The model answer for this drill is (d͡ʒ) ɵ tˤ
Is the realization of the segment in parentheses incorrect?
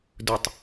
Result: yes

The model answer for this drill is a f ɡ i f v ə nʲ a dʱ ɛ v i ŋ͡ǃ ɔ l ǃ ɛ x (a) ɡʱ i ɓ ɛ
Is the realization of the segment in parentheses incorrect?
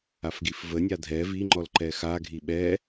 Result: no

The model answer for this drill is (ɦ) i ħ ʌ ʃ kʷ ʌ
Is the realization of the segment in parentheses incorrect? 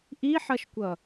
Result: yes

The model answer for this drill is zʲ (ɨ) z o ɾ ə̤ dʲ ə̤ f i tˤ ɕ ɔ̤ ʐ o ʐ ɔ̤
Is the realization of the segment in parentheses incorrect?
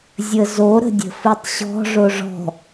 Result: yes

